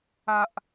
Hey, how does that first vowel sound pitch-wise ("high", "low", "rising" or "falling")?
high